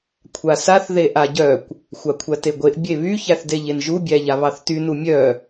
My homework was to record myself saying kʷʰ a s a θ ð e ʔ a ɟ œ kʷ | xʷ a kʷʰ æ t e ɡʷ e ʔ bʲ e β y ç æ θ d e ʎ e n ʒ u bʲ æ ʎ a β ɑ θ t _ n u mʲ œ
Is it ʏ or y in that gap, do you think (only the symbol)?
y